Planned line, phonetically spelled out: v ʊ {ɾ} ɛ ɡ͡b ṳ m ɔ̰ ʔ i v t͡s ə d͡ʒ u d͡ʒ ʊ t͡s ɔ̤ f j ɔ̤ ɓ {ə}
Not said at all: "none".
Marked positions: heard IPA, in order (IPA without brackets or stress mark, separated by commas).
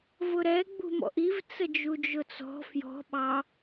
ɾ, ɑ